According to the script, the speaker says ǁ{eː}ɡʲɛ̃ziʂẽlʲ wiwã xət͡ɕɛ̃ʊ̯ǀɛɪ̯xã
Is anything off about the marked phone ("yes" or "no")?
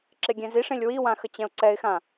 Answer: yes